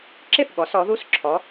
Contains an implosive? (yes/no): yes